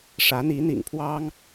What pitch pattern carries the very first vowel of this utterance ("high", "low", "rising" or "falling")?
rising